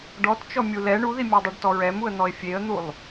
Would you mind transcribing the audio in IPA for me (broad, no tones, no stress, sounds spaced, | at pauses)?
ɖ ɔ t t͡ʃ ɔ mʲ u l ɛ ɳ u ð i mʲ ɔ dˤ u ɖ t ɔ ɹ ɛ m u ə̯ n̪ ɔ ɪ̯ fʲ e ə̯ n̪ u lˠ